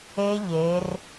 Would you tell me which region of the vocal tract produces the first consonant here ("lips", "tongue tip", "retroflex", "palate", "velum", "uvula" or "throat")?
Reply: palate